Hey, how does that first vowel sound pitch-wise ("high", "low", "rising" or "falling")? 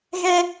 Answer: high